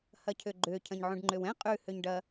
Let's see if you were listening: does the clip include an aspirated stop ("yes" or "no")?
yes